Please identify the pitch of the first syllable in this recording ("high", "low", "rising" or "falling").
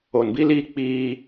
low